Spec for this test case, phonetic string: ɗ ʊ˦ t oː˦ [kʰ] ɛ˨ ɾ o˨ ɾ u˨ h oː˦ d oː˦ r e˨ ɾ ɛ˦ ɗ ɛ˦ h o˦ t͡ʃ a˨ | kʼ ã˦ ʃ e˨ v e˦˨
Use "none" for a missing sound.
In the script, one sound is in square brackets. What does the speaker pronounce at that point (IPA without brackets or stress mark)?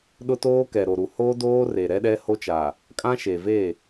k